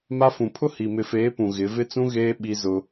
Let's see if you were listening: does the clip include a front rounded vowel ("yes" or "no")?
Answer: no